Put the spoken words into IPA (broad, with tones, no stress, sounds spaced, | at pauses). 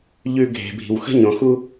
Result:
ʎ ʉ˦ ɡʱ e̤˨ bʱ i̤˨ w x ə̤˦ ɲ õ˨ x u˦